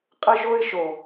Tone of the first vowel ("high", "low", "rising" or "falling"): high